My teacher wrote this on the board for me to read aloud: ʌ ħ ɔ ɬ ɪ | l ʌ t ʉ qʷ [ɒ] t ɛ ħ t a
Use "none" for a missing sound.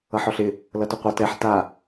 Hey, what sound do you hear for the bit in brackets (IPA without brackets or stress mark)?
ʌ